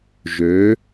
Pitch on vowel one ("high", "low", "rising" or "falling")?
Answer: rising